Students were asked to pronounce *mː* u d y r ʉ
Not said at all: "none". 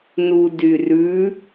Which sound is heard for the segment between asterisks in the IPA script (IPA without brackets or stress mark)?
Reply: n